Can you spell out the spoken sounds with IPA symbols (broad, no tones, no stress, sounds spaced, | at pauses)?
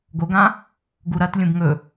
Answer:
ɡ o ɡ ã | ɡ u ɾ ɐ t lʲ ũ b ŋ ɵ